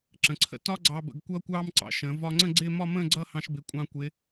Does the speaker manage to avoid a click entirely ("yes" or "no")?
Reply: no